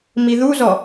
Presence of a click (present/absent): absent